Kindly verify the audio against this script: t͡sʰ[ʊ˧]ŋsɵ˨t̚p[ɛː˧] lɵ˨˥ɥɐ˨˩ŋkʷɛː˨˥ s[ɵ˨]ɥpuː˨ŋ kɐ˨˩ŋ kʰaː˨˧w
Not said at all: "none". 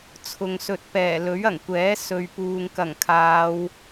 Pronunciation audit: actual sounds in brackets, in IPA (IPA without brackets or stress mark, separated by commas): ʊ˨, ɛː˨˩, ɵ˨